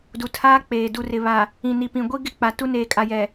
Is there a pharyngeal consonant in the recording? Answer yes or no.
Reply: no